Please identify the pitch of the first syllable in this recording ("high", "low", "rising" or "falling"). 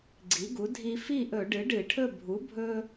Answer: rising